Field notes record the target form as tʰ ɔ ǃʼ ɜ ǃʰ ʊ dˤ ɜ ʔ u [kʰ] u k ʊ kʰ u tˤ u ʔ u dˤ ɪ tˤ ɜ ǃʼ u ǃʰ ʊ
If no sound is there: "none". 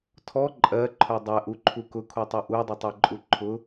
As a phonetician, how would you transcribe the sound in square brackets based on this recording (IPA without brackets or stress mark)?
ǃʰ